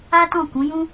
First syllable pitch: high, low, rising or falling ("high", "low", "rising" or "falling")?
high